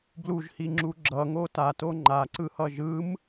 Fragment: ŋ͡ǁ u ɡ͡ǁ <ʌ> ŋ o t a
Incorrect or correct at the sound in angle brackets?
correct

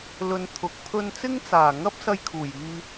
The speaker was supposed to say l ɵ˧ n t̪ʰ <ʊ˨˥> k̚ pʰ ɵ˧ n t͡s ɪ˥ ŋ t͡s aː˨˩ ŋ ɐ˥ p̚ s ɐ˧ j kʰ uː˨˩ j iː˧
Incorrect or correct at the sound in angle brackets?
correct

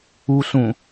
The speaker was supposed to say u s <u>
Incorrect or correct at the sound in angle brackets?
incorrect: ũ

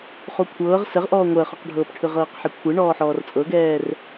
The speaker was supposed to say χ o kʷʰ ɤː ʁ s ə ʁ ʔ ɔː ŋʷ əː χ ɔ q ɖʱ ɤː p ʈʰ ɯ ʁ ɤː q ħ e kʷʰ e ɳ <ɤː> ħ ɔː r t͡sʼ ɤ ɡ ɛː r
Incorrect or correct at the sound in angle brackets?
incorrect: ɔː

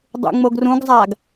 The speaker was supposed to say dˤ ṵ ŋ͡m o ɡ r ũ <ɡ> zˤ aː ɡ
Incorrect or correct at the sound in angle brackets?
correct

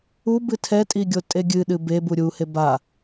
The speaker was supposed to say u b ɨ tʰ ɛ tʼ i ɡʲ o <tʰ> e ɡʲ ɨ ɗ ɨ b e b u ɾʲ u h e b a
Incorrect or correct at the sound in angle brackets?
incorrect: tʼ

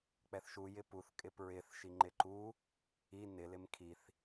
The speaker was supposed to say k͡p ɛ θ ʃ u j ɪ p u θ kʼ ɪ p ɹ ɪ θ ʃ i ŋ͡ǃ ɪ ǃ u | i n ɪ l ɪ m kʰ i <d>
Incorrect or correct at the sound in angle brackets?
incorrect: θ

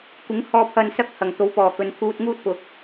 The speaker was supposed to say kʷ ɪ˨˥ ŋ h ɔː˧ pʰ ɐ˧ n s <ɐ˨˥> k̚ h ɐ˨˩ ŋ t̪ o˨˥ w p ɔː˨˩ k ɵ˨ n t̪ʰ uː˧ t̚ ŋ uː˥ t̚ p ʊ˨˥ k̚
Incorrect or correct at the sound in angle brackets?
incorrect: ɐ˥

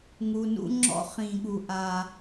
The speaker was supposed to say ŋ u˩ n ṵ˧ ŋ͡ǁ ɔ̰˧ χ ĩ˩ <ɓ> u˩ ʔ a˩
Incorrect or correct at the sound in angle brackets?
incorrect: ɠ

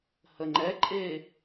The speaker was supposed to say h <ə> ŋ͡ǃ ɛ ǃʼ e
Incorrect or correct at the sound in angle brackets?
correct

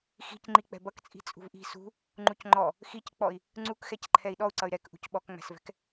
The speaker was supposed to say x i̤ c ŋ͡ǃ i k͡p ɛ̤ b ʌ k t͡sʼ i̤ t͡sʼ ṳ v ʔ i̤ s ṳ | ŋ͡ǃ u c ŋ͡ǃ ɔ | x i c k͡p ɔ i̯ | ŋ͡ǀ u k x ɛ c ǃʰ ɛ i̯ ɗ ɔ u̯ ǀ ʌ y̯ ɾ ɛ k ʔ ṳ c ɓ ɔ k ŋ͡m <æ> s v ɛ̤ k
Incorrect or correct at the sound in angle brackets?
incorrect: æ̤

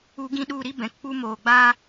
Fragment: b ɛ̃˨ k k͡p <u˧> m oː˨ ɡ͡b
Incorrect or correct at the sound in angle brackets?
incorrect: u˦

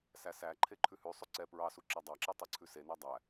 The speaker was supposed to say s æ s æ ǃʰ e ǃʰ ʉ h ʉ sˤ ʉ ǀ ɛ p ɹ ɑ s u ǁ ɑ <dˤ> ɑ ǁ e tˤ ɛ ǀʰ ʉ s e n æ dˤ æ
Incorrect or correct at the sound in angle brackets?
correct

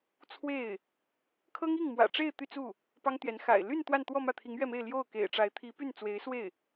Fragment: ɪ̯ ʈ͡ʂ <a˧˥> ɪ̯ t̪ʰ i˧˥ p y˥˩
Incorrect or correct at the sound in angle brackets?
correct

